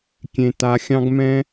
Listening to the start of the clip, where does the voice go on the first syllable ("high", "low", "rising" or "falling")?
low